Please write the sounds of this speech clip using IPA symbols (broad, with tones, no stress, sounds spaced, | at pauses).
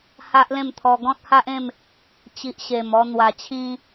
h a˦ ʔ l ẽ˥˧ m t̪ʰ ɔ˧ ɡ ɔ̃˦ t̚ h a˦ ʔ ẽ˥˧ m | t͡ɕ i˨ ʔ ɕ e˨˩ m ɔ˧ n̪ w a˨˩ t͡ɕʰ ĩ˧